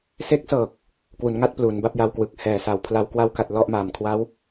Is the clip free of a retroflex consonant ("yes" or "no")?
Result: yes